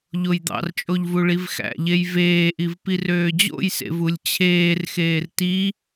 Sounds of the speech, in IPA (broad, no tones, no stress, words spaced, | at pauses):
ʎojd̪ɑ̰rt͡ʃʼoʎvu ɭivxæ̰ʎej veːʔivpir øːd͡ʑo̰jsḛv ulʲt͡ɕʰeːrxeːr ti